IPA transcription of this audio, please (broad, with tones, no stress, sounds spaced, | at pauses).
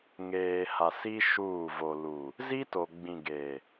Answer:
ŋ eː˨ h a˨ s i˦ ʃ uː˦˨ v o˨ l u˨ | z i˦ t o˨ ɡ͡b ĩ˨ ɡ e˨